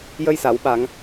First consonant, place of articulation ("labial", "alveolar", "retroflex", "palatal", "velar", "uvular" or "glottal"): palatal